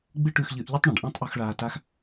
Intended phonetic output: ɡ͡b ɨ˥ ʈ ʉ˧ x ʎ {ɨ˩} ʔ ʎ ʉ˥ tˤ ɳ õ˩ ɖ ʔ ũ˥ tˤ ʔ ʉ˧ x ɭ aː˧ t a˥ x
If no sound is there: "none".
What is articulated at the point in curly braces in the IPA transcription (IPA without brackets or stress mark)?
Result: ɨ˧